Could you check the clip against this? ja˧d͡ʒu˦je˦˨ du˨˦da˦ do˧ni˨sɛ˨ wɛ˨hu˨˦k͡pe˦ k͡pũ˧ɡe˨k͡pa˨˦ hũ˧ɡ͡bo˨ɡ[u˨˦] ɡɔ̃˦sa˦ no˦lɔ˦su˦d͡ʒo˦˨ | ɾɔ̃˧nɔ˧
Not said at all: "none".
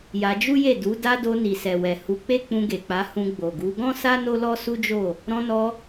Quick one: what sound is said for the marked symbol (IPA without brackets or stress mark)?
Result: u˨˦